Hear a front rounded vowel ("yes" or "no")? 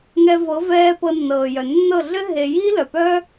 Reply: yes